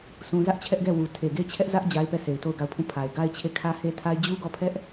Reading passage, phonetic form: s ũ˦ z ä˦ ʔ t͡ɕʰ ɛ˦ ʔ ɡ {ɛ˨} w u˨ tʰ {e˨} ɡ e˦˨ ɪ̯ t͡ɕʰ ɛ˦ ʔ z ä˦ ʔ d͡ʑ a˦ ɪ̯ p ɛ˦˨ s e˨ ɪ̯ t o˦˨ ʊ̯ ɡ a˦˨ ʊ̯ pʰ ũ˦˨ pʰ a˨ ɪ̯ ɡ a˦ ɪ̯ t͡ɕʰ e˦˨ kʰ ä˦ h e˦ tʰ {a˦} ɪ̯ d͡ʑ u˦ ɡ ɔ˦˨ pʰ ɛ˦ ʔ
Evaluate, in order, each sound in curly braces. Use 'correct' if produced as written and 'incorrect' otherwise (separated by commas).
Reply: incorrect, correct, correct